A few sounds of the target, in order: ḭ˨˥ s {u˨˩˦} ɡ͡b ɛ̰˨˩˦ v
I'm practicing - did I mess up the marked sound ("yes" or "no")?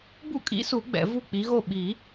no